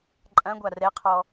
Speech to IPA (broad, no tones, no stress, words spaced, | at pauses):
ǃʼɐ̃ɡʷa rɛqʰɔ